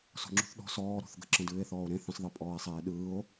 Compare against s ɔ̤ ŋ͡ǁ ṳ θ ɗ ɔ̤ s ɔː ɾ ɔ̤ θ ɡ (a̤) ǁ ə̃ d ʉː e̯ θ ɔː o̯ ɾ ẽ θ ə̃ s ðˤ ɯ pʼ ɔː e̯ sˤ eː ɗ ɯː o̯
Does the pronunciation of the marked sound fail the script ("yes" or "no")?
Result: yes